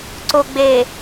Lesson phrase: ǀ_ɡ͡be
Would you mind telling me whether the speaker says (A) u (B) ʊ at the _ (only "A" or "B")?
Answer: B